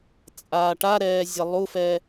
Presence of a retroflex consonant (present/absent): present